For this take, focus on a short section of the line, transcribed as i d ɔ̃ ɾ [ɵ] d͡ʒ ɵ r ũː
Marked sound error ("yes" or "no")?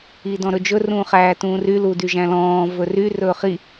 no